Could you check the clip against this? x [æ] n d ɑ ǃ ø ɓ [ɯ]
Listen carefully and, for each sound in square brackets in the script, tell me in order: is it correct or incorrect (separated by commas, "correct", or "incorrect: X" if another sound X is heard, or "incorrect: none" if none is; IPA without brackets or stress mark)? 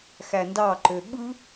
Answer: correct, correct